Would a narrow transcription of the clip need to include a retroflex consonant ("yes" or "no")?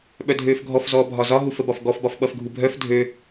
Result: no